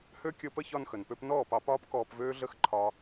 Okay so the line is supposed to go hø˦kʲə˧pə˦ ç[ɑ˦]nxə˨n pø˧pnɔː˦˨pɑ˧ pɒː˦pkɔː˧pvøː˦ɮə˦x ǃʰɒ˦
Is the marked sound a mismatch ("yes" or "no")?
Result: yes